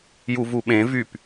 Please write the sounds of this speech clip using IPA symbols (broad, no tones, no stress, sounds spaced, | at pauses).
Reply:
j u v u ɓ ẽ v y p